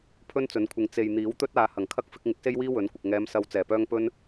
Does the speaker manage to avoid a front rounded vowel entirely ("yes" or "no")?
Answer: no